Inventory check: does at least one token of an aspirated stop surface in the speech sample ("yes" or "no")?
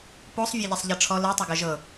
yes